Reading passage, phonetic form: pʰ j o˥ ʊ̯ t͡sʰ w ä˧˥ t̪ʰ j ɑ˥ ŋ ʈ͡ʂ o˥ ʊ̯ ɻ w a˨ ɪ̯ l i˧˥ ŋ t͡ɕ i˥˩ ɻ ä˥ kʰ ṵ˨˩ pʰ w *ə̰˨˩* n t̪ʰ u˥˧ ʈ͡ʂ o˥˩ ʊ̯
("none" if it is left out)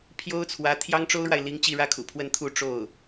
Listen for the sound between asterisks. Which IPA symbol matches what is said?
ə˥˧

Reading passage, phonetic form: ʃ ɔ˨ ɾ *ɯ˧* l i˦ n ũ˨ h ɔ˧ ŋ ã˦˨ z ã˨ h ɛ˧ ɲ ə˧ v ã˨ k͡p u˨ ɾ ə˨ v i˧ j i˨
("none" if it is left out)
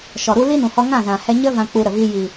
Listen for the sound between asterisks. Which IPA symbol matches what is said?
u˧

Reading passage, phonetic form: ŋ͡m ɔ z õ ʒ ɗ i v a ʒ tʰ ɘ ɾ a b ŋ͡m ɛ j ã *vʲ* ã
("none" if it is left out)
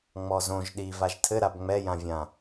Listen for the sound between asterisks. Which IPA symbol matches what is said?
vʲ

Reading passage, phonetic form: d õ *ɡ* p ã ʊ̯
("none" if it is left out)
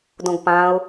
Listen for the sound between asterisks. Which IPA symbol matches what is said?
ɡ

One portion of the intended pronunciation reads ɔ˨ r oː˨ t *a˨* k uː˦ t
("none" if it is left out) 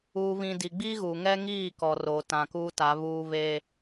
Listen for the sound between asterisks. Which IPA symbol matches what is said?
ã˨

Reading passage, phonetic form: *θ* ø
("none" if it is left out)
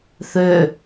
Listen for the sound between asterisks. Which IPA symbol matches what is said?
θ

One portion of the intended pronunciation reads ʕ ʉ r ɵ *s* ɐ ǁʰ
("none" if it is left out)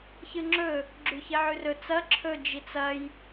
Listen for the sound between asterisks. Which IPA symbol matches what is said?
t͡s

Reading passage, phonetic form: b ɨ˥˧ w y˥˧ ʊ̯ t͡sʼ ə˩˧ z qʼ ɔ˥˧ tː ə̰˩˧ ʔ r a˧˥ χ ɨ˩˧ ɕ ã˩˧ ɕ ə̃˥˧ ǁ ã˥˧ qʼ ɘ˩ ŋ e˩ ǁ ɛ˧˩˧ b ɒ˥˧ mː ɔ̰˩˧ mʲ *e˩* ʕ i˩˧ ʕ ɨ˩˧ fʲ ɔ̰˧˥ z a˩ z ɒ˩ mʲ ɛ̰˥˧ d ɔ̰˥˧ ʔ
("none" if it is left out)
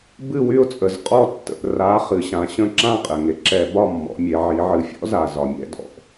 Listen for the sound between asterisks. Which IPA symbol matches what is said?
e˩˧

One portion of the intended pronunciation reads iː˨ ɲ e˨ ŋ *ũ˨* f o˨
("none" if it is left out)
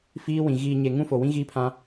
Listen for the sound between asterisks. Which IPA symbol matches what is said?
ũ˦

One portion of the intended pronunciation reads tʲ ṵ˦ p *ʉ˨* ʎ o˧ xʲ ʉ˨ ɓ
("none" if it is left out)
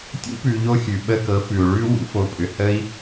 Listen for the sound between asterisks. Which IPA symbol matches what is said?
ʉ˨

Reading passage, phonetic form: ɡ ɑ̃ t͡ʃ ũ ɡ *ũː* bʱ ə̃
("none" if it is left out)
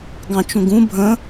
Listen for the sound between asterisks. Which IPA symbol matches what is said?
ũ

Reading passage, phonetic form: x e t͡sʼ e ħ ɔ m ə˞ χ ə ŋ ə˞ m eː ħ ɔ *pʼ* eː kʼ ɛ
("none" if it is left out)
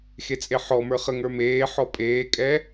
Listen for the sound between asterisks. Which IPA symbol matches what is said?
pʼ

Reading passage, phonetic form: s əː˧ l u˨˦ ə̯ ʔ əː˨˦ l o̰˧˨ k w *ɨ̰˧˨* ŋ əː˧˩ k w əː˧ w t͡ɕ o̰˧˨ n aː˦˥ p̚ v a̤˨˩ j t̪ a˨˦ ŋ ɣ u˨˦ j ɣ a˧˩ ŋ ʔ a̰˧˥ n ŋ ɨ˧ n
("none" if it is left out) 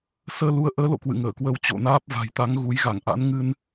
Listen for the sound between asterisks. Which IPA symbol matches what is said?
ɨ̰˧˨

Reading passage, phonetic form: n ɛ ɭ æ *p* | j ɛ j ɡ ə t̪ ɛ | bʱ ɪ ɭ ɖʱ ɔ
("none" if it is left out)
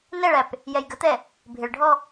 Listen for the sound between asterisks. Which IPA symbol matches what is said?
p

